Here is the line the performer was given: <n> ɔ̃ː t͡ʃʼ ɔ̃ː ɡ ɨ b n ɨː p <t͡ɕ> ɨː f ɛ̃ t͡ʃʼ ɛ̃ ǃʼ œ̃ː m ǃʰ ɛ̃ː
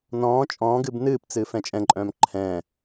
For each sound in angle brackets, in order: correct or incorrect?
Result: correct, incorrect: t͡s

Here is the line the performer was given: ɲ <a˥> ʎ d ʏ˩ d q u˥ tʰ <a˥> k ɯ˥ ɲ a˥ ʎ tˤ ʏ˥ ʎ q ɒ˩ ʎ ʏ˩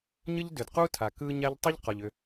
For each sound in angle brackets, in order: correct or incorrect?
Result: incorrect: ə˥, incorrect: a˩

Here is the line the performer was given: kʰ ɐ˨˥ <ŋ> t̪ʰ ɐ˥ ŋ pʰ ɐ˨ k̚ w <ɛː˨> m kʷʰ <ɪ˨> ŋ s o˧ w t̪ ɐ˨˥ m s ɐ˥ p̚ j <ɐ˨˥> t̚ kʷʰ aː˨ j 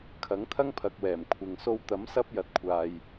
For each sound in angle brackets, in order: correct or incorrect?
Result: correct, incorrect: ɛː˨˩, correct, correct

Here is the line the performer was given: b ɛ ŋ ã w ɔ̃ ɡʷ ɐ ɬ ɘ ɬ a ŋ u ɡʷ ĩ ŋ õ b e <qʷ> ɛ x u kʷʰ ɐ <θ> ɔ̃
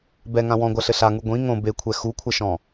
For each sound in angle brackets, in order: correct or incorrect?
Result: incorrect: kʷʰ, incorrect: ʃ

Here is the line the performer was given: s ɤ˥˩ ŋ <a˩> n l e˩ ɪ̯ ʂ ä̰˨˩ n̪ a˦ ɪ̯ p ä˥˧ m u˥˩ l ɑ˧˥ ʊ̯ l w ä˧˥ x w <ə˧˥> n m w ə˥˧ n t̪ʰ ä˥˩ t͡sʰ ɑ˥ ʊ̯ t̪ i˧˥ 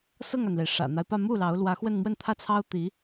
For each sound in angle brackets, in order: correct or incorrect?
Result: correct, incorrect: ə˥˧

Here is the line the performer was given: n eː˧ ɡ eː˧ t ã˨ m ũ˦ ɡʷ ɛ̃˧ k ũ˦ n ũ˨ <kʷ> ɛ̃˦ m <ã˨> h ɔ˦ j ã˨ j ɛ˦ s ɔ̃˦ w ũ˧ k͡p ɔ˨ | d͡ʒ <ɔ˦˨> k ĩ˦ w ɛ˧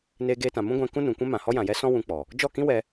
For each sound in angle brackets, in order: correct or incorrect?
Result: correct, correct, correct

